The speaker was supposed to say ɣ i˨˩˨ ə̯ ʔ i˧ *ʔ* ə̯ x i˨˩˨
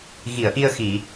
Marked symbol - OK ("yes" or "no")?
no